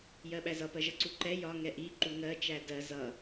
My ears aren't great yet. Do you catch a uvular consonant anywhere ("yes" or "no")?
no